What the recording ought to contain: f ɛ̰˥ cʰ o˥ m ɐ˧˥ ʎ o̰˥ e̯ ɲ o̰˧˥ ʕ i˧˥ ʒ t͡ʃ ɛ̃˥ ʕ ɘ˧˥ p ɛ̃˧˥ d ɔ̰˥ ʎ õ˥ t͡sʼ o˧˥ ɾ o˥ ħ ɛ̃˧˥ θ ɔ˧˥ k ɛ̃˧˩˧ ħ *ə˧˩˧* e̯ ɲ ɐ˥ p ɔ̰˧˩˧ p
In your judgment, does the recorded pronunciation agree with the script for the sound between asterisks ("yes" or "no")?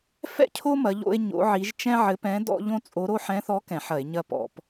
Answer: no